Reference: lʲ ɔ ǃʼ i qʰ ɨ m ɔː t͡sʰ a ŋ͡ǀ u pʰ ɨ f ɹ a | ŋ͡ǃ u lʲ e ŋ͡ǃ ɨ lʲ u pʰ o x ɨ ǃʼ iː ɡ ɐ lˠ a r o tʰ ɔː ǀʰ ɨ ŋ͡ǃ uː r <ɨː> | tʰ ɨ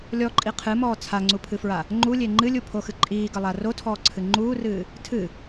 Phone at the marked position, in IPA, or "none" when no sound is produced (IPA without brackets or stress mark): ɨː